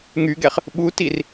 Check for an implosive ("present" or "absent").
present